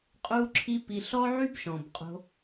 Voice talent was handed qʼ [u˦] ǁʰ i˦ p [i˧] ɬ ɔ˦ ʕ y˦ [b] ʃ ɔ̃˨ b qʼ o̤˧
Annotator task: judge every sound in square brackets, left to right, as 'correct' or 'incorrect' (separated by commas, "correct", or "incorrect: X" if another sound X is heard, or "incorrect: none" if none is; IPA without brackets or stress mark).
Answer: correct, correct, correct